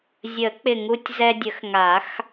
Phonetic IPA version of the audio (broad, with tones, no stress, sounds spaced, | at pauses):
zʲ ə˨˩˦ k͡p ɪ˨˩ ŋ u˧ tʲ z ɛ˧ dʲ ə˨˩˦ x ŋ a˨˩˦ x